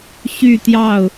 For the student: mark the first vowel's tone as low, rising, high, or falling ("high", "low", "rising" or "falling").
falling